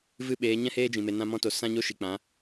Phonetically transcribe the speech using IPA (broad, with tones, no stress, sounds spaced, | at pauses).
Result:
v ɨ˦˨ ɓ eː˨˦ ɲ ɛ̃˦ h eː˦ d͡ʒ ĩ˨ m e˨ n ã˧ m ɔ̃˧ t o˨ s ã˦ ɲ o˦ ʃ i˨ k͡p ã˨˦